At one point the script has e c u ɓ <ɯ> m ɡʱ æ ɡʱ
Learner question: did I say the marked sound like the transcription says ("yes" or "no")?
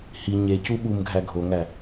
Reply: no